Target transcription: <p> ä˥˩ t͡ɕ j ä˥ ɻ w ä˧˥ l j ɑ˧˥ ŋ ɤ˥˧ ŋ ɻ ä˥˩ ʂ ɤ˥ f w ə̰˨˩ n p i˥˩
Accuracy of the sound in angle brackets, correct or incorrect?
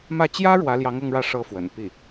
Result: incorrect: m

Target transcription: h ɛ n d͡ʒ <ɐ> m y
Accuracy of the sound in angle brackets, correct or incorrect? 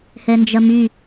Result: correct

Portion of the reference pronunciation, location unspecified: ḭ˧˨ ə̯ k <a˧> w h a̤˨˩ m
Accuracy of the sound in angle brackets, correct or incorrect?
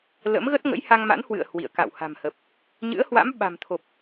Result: incorrect: a̰˧˨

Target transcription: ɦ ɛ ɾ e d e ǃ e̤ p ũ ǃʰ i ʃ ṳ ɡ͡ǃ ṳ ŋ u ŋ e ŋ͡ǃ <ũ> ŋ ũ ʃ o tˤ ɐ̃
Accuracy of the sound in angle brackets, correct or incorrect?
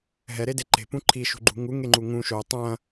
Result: incorrect: u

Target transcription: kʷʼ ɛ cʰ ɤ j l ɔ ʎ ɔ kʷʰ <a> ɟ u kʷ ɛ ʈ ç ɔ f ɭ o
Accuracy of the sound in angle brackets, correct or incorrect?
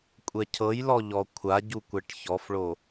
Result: correct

